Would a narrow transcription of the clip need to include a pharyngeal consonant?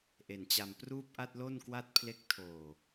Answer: no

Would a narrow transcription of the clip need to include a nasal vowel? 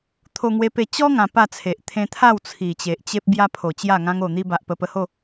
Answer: yes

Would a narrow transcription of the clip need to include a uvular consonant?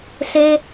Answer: no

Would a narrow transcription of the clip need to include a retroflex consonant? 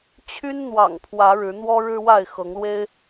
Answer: yes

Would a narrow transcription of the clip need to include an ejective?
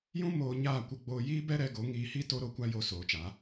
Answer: no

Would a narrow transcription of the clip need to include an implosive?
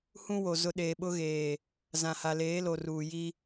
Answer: yes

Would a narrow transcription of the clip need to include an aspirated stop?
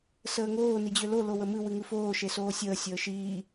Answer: no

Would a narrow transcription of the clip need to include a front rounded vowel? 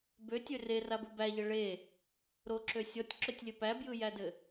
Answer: yes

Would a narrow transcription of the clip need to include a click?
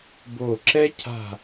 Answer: yes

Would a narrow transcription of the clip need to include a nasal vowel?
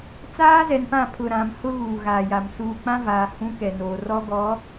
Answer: yes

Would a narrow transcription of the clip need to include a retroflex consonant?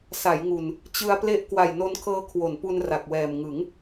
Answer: no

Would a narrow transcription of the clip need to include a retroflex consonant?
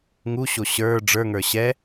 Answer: yes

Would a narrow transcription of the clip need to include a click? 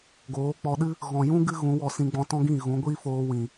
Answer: no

